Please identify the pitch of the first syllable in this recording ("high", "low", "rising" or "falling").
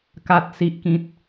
low